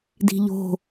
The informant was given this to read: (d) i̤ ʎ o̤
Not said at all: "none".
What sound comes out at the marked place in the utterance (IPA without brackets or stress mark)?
d